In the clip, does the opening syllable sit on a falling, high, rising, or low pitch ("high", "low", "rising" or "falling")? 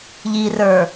low